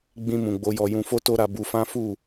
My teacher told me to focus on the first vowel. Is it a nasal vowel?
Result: yes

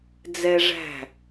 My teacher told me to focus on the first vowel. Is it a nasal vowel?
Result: no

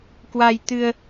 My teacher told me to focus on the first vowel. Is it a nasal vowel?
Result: no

